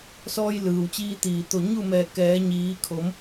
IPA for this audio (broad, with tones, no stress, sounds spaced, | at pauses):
s ɔː˧ j l ɯː˩ w t͡ɕ iː˧ t̪ iː˩ t̪ o˧˩ ɲ u˥˨ m ɛː˧˩ k ɛː˩˧ ɲ iː˩˧ kʰ o˩˧ m